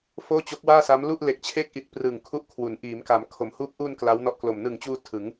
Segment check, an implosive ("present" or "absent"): absent